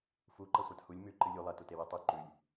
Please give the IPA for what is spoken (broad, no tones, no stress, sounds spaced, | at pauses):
f u ǃ ɐ sʷ a t h u lʲ m ʉ ǃ ɨ lʲ u lˠ ɐ t u t e w ɨ tˤ u ǃ ʉ lʲ